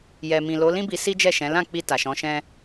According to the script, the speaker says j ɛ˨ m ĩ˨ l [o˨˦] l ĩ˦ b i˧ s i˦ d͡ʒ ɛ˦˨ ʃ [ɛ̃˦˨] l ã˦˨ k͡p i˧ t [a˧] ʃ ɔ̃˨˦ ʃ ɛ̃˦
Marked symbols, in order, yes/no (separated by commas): yes, no, no